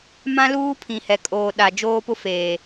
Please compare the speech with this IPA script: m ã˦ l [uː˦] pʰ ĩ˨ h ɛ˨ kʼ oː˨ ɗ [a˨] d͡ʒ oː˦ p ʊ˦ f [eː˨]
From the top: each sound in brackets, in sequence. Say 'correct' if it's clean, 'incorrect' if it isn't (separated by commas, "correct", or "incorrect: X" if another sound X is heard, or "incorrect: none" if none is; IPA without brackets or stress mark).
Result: correct, correct, correct